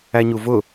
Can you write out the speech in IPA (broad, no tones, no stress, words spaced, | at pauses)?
æɲuvʊ